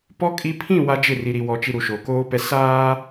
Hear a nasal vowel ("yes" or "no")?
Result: yes